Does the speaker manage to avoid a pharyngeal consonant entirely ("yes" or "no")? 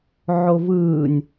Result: no